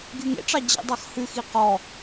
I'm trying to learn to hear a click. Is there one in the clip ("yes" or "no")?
no